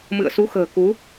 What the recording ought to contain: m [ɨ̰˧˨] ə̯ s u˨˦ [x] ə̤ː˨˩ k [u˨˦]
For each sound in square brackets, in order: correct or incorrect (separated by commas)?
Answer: correct, correct, correct